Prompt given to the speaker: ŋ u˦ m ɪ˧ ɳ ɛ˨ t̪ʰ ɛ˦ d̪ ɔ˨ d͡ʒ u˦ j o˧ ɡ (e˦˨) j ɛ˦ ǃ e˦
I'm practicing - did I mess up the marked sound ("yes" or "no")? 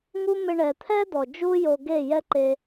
no